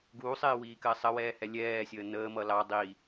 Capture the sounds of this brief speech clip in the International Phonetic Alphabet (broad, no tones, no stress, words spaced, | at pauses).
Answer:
ɡuːsˤɪːwiːkɜ sˤəwɛːhɛ lʲɛːsʲəː nəːmʌ lɑ dˤiː